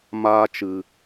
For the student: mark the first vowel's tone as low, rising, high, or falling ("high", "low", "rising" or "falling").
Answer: high